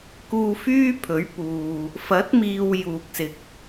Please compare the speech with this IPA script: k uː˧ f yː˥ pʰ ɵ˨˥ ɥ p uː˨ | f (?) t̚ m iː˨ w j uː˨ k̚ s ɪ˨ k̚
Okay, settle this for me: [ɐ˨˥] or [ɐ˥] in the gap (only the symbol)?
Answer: ɐ˨˥